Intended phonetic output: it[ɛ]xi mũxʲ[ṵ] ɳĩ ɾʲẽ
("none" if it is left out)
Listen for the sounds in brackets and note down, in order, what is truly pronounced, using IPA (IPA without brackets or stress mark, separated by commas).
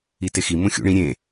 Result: e, ṵ